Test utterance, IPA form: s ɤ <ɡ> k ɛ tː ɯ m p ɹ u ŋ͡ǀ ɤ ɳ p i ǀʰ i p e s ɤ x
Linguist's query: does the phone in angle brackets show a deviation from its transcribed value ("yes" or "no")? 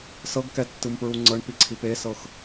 no